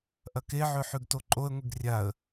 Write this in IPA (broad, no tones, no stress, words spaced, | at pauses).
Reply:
ʔɐkeʕɵ ħʉɡtoǃʼoə̯ŋʷiɡ rʲaə̯